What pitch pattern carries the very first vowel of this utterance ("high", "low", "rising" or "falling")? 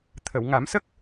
low